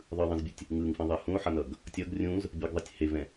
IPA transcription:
ðˤɯðˤĩzbʲutʲ | ŋɯŋfĩðˤɛ hũo̯ħʌnʌɡ | tʲʌɡ rʲũz | bʲɛɡðˤetʲ hevɛ̃

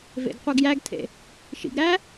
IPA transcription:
vḛɡqʷœɡjæɡtʰḛ | ʃḭɡɾæ

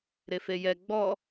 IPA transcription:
ɾefejɛ ɡ͡bɔ

